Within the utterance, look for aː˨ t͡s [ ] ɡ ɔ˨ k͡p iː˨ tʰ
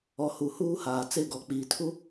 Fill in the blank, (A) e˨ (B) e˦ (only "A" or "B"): B